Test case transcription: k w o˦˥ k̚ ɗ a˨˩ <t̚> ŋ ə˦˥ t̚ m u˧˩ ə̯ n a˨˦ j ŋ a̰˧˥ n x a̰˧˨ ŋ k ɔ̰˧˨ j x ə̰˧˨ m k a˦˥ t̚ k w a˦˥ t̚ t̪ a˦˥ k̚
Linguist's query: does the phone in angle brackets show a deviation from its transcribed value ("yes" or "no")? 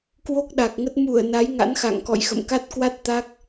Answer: yes